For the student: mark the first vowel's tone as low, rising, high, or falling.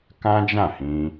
high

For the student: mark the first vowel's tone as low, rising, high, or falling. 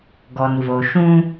low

